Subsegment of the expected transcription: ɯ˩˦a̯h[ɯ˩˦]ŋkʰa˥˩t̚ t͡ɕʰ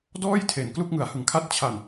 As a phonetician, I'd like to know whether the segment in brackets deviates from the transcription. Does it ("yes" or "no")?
no